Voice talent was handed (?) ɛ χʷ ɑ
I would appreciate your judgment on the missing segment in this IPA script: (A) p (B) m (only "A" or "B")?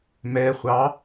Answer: B